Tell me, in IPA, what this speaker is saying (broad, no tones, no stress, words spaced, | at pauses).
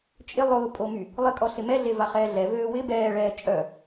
t͡ʃʼɪ lˠʊːpʼomy | lˠɪkʼɔɬɪ mɛɮevaχɛː ɮɛvøː wɪ bɛːɭɛː t͡ʃʼœ